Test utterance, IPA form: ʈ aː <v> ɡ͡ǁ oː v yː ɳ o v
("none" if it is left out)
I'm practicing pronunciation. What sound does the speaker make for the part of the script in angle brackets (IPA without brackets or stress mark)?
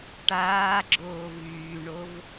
none